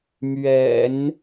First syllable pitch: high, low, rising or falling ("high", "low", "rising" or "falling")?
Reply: low